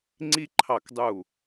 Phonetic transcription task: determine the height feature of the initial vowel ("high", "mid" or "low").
high